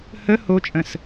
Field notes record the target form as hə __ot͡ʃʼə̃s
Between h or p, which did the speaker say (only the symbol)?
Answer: h